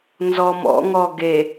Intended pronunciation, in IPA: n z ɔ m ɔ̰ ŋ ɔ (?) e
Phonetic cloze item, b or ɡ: ɡ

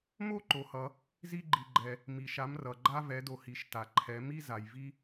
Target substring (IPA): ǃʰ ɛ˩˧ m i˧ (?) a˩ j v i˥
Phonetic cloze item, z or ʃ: z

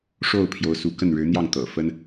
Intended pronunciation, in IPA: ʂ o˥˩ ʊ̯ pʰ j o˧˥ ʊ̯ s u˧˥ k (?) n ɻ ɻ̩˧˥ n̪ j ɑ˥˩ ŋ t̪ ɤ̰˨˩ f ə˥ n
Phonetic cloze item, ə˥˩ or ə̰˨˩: ə˥˩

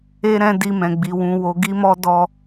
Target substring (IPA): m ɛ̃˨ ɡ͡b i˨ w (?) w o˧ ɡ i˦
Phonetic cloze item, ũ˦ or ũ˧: ũ˧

